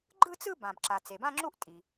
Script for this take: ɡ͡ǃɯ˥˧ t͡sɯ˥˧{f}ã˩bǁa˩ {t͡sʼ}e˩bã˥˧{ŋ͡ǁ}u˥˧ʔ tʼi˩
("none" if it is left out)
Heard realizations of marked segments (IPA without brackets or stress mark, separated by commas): b, t͡s, ŋ͡ǁ